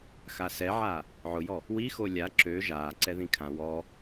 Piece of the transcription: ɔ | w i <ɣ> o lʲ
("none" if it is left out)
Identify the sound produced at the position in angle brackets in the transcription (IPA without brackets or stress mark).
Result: x